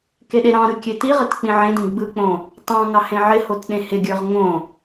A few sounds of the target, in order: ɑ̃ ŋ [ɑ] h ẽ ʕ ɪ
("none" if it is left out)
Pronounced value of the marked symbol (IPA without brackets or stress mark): ɑ